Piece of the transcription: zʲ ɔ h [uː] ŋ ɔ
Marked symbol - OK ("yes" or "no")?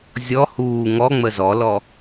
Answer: yes